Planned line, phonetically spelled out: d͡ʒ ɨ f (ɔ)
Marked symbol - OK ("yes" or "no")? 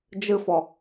yes